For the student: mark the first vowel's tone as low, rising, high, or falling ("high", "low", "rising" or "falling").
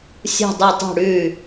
falling